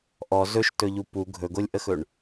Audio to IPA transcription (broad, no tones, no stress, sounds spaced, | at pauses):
ʔ ɔ z ɵ ʃ t ɵ ʎ u p u ɡʱ ɵ ɡ o lʲ ʔ ə x ɵ ɳ